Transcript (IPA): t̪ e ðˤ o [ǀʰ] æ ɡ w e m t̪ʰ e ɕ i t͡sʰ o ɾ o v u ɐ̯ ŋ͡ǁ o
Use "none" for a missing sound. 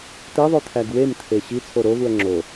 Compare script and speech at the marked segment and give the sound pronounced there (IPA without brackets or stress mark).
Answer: t̪ʰ